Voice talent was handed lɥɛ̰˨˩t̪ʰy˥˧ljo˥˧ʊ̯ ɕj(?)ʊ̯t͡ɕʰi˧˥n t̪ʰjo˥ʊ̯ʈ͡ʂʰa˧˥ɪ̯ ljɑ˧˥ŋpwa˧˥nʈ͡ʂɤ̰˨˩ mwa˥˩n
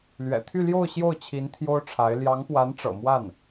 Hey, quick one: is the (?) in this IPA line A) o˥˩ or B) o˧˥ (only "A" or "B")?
A